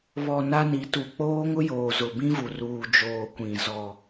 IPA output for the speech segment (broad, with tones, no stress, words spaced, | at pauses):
βɔ˨ na˦ni˨˦tu˨ k͡poː˦ŋʊ˦joː˨ zʊ˨bĩ˦vu˨ ruː˨d͡ʒoː˨ kʷĩ˨ zɔ˨